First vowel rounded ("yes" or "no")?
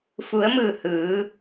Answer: yes